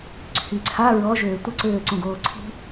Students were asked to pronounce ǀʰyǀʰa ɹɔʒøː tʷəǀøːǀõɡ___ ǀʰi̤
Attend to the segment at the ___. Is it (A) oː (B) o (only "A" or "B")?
A